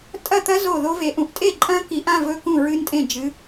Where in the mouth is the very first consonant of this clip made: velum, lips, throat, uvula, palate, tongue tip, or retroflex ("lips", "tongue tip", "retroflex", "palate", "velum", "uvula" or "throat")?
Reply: tongue tip